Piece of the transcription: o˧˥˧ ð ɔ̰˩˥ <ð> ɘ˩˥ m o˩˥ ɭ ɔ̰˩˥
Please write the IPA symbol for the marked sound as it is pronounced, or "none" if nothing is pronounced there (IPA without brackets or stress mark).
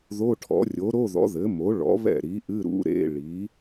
ð